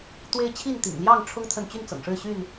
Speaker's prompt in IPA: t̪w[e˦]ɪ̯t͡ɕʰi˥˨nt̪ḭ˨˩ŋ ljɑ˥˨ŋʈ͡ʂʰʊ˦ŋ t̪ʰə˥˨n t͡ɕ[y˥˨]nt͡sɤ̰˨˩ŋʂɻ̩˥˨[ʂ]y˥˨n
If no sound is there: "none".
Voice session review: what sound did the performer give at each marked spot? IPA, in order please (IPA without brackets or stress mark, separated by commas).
e˦, y˥˨, ɕ